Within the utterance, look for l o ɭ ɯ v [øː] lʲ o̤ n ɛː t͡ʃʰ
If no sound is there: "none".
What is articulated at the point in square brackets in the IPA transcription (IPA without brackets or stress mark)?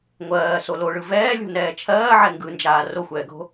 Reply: ɛː